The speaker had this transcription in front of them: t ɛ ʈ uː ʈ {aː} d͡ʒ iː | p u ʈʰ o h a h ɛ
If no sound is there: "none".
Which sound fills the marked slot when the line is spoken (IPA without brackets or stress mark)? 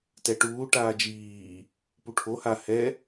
aː